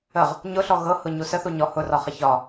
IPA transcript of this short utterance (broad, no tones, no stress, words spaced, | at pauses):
əʁ | ɲʊɬɔ ɣɤhʊɲu səθu ɲɔ hʊrɒχə çɒ